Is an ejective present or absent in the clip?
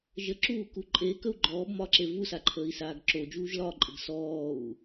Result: present